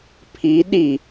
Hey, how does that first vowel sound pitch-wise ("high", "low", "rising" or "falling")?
rising